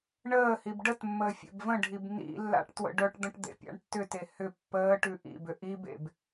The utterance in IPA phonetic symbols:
ɳəːhib ɖətmːəː fʲḛbvə̃ɖʱib nḭlːa̰ʈ twə̰ɖœʈd̪ə̃ʈ d̪ḛpʲa̰ɳtːʏte hʏ pːəː ʈʉʔḭbʏ ʔibḛb

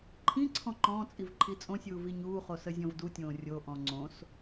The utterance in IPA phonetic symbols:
ǃʰĩǀʰɔ̃ ǃɔ̃ːt͡sʼiv ǃʰit͡sʼõsʲuː viɲuːχo səzʲɔ̃vdutʲõː rʲoʔɔ̃ ŋ͡ǀõs

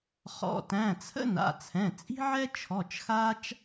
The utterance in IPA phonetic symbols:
χɔ̰˩˧˩tæ̃˩˧˩t͡sʰə̰˥ na̰˩˧˩t͡sʰɛ̃˩˧˩ t͡sʼi̤˥ʕɛ˥ t͡ʃʰɔ˩˧˩t͡ʃxaː˥t͡ʃ

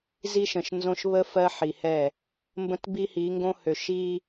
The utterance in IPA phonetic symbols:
zi˦ʃə̃˨ʃnzõ˦ʃ βə˦ fɜ˦ħi˨hɛ˦˨ | mbə̃˦tbi˦hi˨˦ŋɡõ˦ hø˨ʃi˦

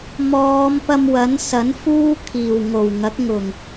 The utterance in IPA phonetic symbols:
mɔː˨˧mpɐ˧mwɐ˨˥n sɐ˨˥nfuː˥ kʰiː˨˩wŋo˨˩wŋɐ˨˥k̚ŋʊ˨˩ŋ

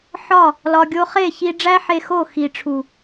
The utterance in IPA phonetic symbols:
ħɒ˦˨ | lɒ˨ ɡʲo˧ χe˦˨çi˧ ɖ͡ʐæ˦ħe˧ xo˦˨ xi˨ʈ͡ʂʰu˨

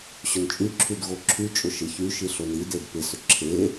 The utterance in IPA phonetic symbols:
ɕʊnt͡ʃʼyǁʰyd ɣoǁʰyt͡ʃʼʊ ʃɪçyʃi ɬonided pɪsʏ ǁʰe

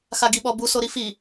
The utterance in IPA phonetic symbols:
xaɡi ɓɔbu soɾifi

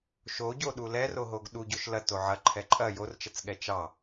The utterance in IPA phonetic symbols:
ʃoɟoɗu lɛroɦoɡ ɗuɟoʃ lɐto ʕɐǃʰɛ ǃʼɐ jort͡ʃɐt͡sɠɛ t͡ʃɑ

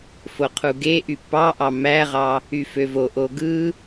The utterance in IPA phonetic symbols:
foqʰuɡeʔy pɑʔɑ mæʁɑ | yføvoʔo ɡɯ

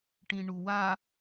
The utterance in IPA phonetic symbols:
ʈĩɳuwa

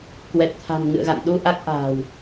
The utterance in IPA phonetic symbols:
kwɛ˨˩t̚ t̪ʰa̤˨˩n ŋɨ̰˧˨ə̯ɣa̰˧˨nɗu˧ʔa˦˥k̚ ʔa̤ː˨˩w

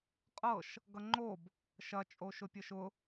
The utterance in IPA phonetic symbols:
qʼɤʃ | ɡʌŋ͡ǃob | ʃɐ t͡ʃʼoʃʊpʲɤʃʊ

